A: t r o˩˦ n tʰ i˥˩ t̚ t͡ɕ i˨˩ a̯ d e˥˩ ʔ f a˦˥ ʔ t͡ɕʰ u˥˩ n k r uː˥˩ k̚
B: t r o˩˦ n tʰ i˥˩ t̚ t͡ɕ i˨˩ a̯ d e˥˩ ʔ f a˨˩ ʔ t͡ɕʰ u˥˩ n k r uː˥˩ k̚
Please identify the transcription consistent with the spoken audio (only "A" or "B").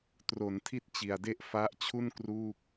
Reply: A